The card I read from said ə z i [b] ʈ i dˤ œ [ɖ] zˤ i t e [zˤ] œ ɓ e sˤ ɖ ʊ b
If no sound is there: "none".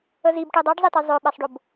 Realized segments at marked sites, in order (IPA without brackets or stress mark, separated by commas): b, ɖ, zˤ